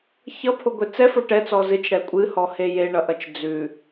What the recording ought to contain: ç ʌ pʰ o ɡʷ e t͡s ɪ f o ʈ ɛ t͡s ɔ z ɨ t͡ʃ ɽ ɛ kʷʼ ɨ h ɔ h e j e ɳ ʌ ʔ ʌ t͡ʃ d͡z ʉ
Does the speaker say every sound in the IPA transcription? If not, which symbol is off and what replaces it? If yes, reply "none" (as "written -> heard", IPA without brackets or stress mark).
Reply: ɪ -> ɛ